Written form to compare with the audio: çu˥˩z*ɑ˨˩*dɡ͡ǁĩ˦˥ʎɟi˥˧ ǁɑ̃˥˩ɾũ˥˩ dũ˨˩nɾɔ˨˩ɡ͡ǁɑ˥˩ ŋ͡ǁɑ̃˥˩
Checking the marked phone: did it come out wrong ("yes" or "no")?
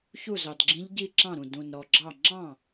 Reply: no